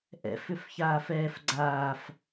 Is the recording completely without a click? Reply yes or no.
no